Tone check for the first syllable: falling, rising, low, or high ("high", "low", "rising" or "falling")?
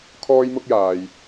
high